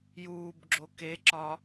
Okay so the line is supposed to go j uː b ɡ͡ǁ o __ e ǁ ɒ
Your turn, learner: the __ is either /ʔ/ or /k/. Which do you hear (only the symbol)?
k